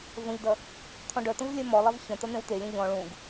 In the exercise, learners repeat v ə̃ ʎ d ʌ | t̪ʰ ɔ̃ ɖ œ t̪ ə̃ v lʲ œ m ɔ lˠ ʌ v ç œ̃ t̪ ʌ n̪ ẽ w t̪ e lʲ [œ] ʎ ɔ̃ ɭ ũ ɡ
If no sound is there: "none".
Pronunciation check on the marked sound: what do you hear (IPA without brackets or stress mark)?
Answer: œ̃